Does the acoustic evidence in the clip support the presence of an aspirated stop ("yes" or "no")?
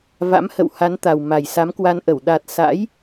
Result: no